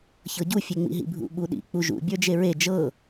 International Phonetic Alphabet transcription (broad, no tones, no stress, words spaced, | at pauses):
çɤɟu fʲeŋ͡mḭɦḭbʱṵ ɓuɗḭ k͡puʒṵ bʲə˞d͡ʒeɹe d͡ʒɤ